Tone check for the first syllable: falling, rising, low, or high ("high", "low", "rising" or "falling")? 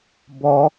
high